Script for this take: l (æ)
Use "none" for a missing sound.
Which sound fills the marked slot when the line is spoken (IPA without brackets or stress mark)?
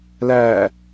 æ